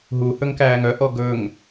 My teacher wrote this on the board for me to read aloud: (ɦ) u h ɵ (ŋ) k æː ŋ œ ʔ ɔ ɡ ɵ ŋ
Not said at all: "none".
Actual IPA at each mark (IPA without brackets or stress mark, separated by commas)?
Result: ɦ, ŋ